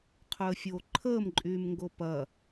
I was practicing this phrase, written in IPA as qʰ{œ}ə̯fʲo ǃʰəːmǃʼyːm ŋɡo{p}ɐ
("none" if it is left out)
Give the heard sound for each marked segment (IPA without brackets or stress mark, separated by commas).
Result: œ, p